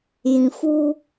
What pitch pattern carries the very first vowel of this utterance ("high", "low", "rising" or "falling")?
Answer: low